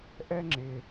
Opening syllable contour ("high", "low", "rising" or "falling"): high